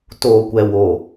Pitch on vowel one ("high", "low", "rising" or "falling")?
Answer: low